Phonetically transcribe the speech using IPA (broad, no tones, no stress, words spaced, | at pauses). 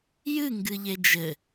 jɨ ŋɡɨʎed͡ʒɘ